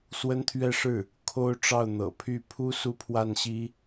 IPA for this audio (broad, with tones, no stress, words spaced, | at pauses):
swə˥nt̪ʰɥɛ˥˧ʂɻ̩˥˩ | kʰo˥ʊ̯ʈ͡ʂɑ˥˩ʊ̯n̪ɤ̰˨˩pʰy˥˩ pʰu˥ su˥pʰwa˥˩n ɕi˥